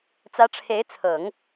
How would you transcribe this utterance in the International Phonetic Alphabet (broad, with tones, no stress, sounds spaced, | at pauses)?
t͡s ä˧˥ ʈ͡ʂʰ e˧˥ ɪ̯ t͡sʰ ɤ˨˩˦ ŋ